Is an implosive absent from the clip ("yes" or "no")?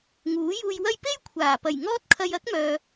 yes